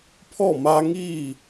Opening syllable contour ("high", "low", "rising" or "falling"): falling